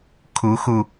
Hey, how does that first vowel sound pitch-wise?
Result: rising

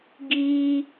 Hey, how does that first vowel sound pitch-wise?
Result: high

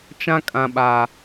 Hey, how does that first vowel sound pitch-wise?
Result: high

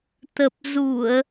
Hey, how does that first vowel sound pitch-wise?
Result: low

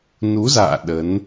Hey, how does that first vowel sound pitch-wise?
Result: rising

